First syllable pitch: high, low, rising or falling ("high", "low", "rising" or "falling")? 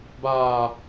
low